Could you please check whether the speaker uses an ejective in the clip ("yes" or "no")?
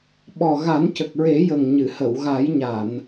no